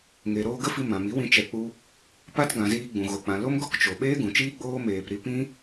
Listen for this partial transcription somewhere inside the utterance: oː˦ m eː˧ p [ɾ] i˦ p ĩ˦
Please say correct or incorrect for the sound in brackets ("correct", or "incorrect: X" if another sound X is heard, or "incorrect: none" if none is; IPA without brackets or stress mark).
correct